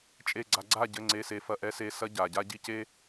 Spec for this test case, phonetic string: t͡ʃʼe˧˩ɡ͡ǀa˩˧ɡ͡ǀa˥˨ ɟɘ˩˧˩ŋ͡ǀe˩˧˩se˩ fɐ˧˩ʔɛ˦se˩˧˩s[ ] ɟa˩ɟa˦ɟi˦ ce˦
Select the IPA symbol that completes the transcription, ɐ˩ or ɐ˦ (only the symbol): ɐ˦